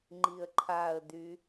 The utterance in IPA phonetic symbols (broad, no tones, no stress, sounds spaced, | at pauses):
ŋ͡ǃ i ə̯ ǃʰ a ə̯ d y